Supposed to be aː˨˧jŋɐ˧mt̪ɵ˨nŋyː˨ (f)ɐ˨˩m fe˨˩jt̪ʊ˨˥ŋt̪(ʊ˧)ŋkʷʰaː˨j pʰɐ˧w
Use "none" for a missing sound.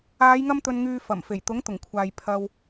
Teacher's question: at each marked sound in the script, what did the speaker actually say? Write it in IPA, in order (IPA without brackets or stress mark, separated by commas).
f, ʊ˨˩